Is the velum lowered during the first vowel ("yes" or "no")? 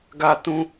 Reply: no